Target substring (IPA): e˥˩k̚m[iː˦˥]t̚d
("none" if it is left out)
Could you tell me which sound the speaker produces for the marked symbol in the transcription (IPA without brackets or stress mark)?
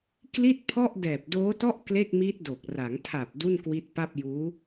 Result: iː˦˥